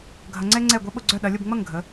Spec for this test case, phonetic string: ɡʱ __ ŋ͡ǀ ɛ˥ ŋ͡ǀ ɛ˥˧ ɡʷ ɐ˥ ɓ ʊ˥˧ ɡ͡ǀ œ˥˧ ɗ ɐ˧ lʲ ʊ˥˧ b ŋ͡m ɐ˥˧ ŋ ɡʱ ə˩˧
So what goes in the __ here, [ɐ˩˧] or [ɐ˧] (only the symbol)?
ɐ˧